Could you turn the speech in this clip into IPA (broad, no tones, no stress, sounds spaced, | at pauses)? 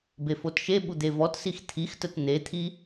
b e f o t ʃ e ɓ u d̪ e v ɔ t s i x t̪ʰ i x t ə t n̪ e t̪ʰ i